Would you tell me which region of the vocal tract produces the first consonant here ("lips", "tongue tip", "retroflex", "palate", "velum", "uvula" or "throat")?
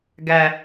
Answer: velum